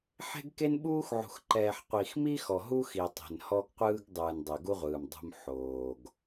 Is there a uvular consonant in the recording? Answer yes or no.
yes